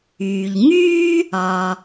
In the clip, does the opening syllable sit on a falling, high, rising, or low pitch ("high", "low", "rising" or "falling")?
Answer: low